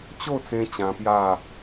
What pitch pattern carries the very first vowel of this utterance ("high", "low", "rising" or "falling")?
falling